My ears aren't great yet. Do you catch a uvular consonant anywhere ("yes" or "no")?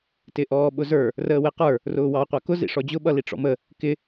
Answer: yes